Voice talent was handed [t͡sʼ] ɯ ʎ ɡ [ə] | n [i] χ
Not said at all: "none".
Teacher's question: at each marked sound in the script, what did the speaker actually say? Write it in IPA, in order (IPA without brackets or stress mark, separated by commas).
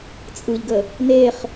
t͡sʼ, ə, e